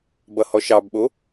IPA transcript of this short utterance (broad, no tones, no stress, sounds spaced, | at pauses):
b ʌ h ɔ ʃ ɑ b ɓ o